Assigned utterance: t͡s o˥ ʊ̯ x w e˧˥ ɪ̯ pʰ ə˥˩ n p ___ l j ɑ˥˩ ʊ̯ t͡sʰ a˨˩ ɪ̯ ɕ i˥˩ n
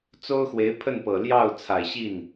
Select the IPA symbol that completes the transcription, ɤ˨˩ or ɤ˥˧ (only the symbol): ɤ˨˩